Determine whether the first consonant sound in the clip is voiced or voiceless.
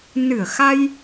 voiced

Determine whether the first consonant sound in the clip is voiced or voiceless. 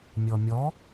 voiced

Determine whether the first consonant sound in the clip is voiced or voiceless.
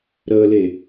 voiced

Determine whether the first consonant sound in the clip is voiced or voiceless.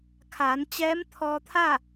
voiceless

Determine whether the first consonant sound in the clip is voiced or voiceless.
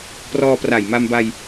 voiceless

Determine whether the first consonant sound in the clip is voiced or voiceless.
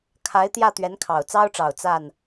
voiceless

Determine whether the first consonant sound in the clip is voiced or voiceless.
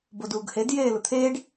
voiced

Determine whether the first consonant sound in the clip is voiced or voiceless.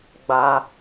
voiced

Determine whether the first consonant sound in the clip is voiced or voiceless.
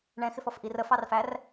voiced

